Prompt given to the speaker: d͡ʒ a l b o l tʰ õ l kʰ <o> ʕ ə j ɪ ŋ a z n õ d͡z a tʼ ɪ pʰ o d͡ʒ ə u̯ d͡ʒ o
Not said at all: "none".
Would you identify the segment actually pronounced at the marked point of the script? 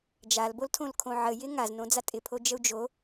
õ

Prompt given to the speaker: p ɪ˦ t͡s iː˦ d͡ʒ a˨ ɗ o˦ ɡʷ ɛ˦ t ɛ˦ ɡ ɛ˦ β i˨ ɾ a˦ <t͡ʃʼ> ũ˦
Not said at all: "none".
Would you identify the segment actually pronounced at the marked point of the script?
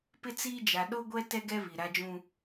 d͡ʒ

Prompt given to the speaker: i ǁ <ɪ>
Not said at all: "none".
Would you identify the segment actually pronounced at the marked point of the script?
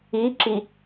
i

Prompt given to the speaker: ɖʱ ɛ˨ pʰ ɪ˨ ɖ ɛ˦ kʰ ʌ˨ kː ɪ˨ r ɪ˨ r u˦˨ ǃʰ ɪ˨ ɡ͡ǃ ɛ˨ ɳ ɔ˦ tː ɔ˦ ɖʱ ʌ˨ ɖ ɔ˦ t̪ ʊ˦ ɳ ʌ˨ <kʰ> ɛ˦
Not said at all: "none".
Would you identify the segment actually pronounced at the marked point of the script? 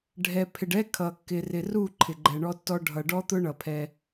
pʰ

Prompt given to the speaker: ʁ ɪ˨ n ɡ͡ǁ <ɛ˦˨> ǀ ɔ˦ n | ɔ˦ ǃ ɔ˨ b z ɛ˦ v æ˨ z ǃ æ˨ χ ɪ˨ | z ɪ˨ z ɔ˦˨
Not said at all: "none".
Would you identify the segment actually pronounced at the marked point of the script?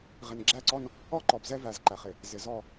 æ˦˨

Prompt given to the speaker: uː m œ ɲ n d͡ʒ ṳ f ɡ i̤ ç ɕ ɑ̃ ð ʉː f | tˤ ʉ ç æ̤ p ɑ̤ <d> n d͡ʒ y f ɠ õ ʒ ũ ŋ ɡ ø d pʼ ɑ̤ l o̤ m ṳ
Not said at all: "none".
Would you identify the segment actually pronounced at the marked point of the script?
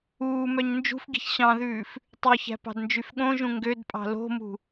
d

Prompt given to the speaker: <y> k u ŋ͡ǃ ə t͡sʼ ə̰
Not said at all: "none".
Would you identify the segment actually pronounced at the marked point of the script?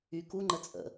y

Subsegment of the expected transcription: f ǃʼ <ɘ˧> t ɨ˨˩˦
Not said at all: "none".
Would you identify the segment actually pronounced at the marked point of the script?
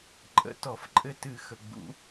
ɘ˧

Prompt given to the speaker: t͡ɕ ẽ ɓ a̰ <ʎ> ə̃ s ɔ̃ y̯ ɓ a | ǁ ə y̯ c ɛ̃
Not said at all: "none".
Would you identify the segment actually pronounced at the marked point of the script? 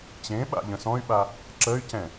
ʎ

